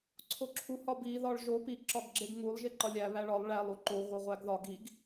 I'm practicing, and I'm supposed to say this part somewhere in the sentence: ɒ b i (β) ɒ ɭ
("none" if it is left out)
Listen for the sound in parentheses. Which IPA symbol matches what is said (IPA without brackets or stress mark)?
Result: ð